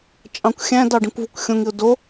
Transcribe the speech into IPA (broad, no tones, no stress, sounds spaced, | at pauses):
t͡ʃʼ ɑ̃ kʷ xʲ æ̃ d ɑ ɖ ĩ kʷ v u kʷ xʲ õ ŋ i ʊ̯ d o